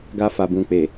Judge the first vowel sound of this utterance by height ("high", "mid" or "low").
low